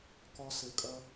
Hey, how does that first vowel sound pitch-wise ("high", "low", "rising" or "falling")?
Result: high